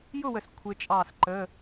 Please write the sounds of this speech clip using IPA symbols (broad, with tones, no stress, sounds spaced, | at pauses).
j ʊ˥˨ w ə˨ s kʷʰ ɪ˦˥ t͡ʃʼ ɑː˥˨ s ǃ ə˧˥˧